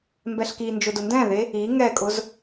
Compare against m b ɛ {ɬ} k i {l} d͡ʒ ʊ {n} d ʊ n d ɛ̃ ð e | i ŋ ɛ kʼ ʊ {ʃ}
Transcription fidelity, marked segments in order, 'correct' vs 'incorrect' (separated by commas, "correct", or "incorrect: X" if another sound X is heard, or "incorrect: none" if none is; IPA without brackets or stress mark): correct, incorrect: n, incorrect: none, incorrect: z